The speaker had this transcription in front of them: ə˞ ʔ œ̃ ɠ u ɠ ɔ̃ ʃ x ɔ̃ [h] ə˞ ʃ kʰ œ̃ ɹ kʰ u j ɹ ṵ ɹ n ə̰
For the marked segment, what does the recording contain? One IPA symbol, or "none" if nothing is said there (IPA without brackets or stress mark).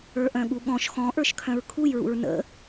ʔ